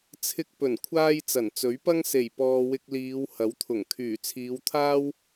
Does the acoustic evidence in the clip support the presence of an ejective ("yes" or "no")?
no